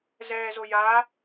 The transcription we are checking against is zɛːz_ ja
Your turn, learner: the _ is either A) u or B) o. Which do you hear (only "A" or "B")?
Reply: B